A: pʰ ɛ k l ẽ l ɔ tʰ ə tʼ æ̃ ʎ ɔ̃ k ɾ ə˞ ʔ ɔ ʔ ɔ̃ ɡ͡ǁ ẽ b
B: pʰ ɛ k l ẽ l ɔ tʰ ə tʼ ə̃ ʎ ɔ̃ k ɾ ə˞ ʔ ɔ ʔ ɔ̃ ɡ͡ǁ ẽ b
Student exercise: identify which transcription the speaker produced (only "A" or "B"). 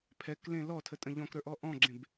B